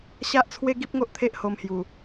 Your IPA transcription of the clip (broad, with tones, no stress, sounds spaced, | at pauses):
ɕ a˦ ʔ t͡sʰ w e˦ ɡ i˦ p̚ ŋ o˦ ʔ t̪ʰ e˦ ʔ h o˧ m h j u˨˩